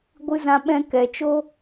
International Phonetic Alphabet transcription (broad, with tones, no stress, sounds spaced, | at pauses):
ɡʷ ɨ˧ z ã˧ ɓ ɛ̃˧ k ɛ˨ t͡ʃ o˦